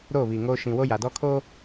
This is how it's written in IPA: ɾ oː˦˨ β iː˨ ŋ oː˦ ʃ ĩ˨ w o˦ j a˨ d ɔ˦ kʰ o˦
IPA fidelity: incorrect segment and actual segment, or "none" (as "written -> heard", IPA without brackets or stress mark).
none